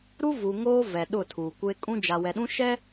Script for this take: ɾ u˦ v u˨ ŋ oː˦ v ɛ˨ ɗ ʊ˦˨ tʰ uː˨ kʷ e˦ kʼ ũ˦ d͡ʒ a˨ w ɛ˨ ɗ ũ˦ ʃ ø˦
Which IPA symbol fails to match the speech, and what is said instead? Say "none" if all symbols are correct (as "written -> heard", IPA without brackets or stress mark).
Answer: ø˦ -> ɛ˦